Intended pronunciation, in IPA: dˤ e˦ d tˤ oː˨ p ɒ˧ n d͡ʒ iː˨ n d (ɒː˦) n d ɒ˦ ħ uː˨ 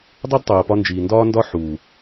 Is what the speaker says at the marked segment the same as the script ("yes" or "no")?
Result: yes